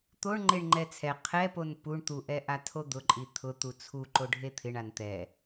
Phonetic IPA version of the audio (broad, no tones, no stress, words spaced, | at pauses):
t̪oɳŋ͡ǃeɳ ŋ͡ǃɛt͡sʰɛ qʰɛpon puɳ t̪uʔɛʔa tʰod̪ʊǃʼi t̪ʰʊ t̪ut͡sʰu ǃoɖʱet̪ʰɪɳ ant̪ɛ